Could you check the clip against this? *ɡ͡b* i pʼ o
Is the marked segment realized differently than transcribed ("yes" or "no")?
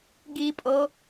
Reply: yes